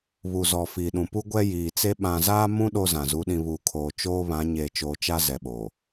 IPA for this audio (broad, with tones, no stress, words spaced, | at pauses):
βu˨zɔ˨ fiː˨ɗũ˨pu˦ ɡʷɛ˦jiː˨t͡se˦ ɓã˨zaː˦mũ˦ ɗo˦zã˨ zu˨˦ɗĩ˨βuː˨kʰoː˨ t͡ʃoː˦βã˨˦ ɲeː˨t͡ʃoː˨t͡ʃa˦ zɛ˨ɓoː˨